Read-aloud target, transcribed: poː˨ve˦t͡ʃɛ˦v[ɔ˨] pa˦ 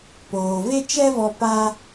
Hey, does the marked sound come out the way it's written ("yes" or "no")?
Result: no